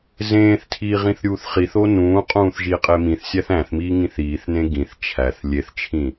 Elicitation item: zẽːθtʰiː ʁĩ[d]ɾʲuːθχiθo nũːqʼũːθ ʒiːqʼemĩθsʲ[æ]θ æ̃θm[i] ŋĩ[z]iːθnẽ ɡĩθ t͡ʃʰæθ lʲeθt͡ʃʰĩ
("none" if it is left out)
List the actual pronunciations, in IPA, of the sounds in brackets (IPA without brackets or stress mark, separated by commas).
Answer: θ, æ, iː, θ